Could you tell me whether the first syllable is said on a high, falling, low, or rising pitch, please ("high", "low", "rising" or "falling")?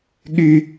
low